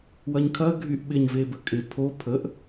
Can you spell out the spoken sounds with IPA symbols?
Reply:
w ɐ ɲ kʰ ɐ ɡʱ y ʔ ɓ ɪ ɲ v e b ə kʼ ɪ pʰ o pʰ ə ʔ

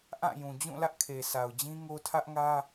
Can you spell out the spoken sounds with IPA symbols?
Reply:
ʔ ã˦˨ j ũ˨ d͡ʑ ũ˦˨ l ä˦ ʔ kʰ e˨ s a˨ ʊ̯ d͡ʑ ĩ˦ ŋ o˦ tʰ ä˦ ʔ ŋ ä˦

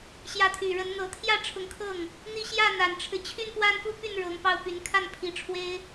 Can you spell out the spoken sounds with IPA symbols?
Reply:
ɕ j ä˧˥ t̪ʰ y˨˩ ɻ ə˧˥ n n̪ ɤ˧˥ t̪ʰ j ä˥˩ ʈ͡ʂʰ ʊ˧˥ ŋ kʰ ɤ˥˩ ŋ | n̪ i˥˧ ɕ j ä˥˩ n̪ a˨˩ n ʈ͡ʂʰ ɻ̩˦ t͡ɕʰ y˥˧ n p w a˥˧ n f u˥˧ p y˥˩ n ɻ ɤ˧˥ ŋ p ɑ˥˩ ʊ̯ p y˧˥ n kʰ a˥˩ n pʰ i˧˥ ʈ͡ʂʰ w e˥ ɪ̯

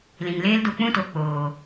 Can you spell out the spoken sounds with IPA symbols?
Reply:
l ĩ˨ ŋ l eː˦ l d o˧ k͡p ũ˦ t o˨ k͡p oː˨

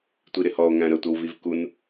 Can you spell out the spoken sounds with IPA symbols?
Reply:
tʷ i ɾ ɪ h ɔ o̯ ŋ æ̃ ɾ ə tʷ ʌ w v i v k u n

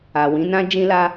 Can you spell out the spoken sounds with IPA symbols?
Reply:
a˨ w ĩ˨˦ n ã˦ d͡ʒ ĩ˧ l a˧

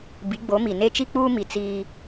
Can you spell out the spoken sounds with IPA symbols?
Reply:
b i˨˦ ɡ͡b o˨˦ m i˨ n e˦ t͡ʃ i˦ k͡p uː˦ m i˨ t͡s iː˦

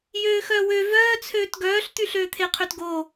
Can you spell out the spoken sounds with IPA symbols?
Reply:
j øː x œː w ø v œː t͡sʰ øː t ɡ œː ɬ t̪ y ɬ øː t̪ʰ e qʰ ø t ɡ o

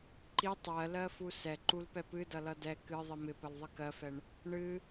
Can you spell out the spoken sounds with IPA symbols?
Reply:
ǃ i tˤ ɜ l ɜ f u s ɛ ǃ u l p ɛ p ɨ d ʌ l ʌ d ɛ k ɨ ðˤ i m ɪ p ə l ðˤ ɨ k ɜ f ɛ ɳ | ɳ ɨ

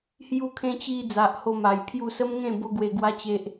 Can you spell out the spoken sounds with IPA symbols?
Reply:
h j u˧ kʰ ẽ˧ t͡ɕ i˧ d͡z a˨ ʔ h o˧ m a˨˩ j pʰ j u˥˧ s ə˦ m ŋ ẽ˥˧ b o˦ ɡ w e˧ ɡ w a˦ t͡ɕ e˦ ʔ

